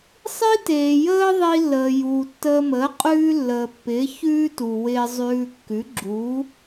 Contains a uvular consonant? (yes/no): yes